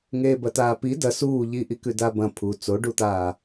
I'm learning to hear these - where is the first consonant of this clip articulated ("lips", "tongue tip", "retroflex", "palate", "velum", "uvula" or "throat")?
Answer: velum